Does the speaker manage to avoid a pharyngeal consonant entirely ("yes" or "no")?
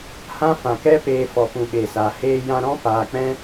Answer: yes